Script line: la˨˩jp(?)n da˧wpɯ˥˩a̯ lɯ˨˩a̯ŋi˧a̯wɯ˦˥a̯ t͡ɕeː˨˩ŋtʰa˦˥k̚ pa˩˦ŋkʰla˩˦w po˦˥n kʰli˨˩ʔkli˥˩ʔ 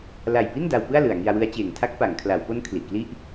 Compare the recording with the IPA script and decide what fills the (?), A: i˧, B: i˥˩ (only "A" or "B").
B